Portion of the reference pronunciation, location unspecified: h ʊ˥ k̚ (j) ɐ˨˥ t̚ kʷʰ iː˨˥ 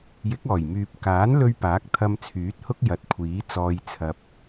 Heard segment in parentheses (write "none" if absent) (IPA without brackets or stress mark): j